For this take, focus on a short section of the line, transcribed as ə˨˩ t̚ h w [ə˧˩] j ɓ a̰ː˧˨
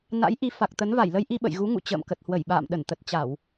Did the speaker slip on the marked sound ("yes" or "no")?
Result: no